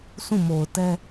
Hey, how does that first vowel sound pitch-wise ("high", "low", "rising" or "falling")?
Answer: falling